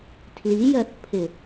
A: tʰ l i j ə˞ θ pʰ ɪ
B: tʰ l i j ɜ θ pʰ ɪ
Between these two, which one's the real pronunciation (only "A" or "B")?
B